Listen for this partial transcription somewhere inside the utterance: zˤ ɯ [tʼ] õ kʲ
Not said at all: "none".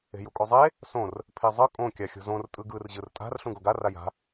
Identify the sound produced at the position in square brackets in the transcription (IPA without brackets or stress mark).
kʼ